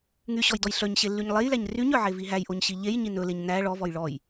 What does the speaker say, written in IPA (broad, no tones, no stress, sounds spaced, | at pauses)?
ŋ y ɕ ɔ j d ɔ j ɬ œ ɲ ɕ e lː y ɲ lˠ e j l æ ɲ r y ɲ œ ʕ e v i ɦ æ j ʔ o ɲ ɕ i ʎ e j ɲ i n ɵ l e ɲ n æ ɭ ɔ v ɔ j ɭ ɔ j